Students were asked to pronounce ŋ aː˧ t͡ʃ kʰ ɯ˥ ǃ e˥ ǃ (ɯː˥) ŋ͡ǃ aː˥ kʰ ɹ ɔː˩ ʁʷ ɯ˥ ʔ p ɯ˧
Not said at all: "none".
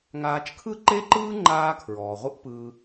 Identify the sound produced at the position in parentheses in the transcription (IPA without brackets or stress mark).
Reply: ɯː˥